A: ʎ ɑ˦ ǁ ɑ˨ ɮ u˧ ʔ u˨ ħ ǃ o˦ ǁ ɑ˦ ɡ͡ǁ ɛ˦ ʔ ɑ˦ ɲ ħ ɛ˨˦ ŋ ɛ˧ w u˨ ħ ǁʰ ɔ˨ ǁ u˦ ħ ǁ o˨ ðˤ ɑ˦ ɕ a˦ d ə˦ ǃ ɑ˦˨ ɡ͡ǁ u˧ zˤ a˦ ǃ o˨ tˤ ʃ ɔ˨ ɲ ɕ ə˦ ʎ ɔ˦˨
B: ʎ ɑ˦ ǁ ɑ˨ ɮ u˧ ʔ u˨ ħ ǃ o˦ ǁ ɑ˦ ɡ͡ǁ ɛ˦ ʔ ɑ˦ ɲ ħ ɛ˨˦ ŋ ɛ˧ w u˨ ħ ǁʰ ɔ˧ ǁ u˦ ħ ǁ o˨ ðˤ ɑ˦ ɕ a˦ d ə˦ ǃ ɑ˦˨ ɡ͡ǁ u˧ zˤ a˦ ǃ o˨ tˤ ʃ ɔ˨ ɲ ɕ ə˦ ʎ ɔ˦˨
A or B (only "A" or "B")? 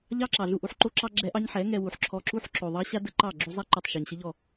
B